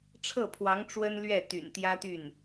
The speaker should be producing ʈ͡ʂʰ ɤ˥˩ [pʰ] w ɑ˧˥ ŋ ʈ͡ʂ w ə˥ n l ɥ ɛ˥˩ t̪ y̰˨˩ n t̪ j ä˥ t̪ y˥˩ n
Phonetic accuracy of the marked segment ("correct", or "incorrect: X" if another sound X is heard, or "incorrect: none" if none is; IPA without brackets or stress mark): correct